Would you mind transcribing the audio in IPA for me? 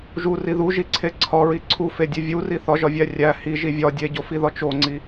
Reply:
ʒ u r i ð u ʒ i ǀʰ e ǀʰ ɒ ɹ i ǀʰ u f e dʲ e vʲ u r i θ ɒ ʒ ɒ vʲ æ rʲ æ h i ʒ i vʲ ɒ dʲ e ɟ o f i ð ɒ t͡ʃ o ŋ͡ǀ i

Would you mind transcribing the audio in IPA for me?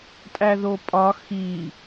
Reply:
tʼ æ ð o pʼ ɒ x i

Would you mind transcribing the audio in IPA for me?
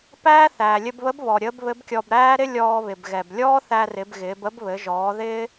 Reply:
p æː˥ θ æː˩ lʲ ɘ˧ b β ə˧˥ b β ɔ˩ ɾʲ əː˧˥ b β ɘ˧˥ b kʲ ɔ˧ b ɾ æː˥ ɾ ɪ˥ lʲ ɔː˧ β ɪ˩ b ɣ ɛ˩ b lʲ ɔː˥ θ æ˧ r ɪ˩˧ b ɣ ɪː˩˧ b ə˥ b β ɘ˩˧ ʒ ɔː˩˧ ð ɪː˥

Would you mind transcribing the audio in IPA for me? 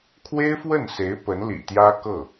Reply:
kʰ w e˥ ɪ̯ f w ə˥˩ n s e˧˥ ɪ̯ p ə˧˥ n l ḭ˨˩ t̪ j ä˥ k ɤ˥˩

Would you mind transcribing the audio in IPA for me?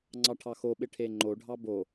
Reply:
ŋ͡ǀ ɑ ʈʰ ɑ x o ɓ ɪ ʈʰ e ŋ͡ǃ o ɖʱ ɑ b o

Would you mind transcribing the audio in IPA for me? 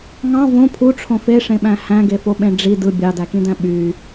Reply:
ŋ ɑ̃ v õ pʰ u ʈ͡ʂʰ õ f e ʂ ẽ ɓ æ̃ h æ̃ ɡ e f o ɓ ẽ ɖ͡ʐ i d ɯ bʲ ɑ d æ k ĩ d æ̃ ɓ y

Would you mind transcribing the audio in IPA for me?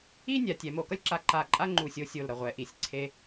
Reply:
i˥ nʲ a˩˧ tʲ ɛ˩˧ m o˧˩ k ʌ˥ lʲ ǁ a˧ ǃ a˧˩ ǃʼ a˥ ŋ͡ǃ u˧˩ sʲ o˧ sʲ o˧˩ l ɾ ʌ˧˩ ʁʷ ɛ˩˧ ʔ i˩˧ sʲ ǀʰ e˧

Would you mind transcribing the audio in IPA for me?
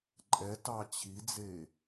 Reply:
ǃʼ ɛ t ɑ t͡ɕʰ i d͡z e

